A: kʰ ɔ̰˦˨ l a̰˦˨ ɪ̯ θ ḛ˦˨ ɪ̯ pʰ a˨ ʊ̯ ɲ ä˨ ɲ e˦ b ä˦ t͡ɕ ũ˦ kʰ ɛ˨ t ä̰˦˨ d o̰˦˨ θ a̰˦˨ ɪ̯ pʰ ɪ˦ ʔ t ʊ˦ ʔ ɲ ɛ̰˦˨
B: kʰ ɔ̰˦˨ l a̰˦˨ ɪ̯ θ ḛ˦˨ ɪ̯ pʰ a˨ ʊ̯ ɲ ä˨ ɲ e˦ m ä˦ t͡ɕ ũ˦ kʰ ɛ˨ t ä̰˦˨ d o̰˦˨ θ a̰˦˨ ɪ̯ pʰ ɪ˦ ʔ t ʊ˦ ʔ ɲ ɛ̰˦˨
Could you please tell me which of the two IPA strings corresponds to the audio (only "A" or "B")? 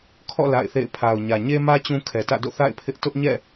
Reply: B